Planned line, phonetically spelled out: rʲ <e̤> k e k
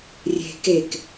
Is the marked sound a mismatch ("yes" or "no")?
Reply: no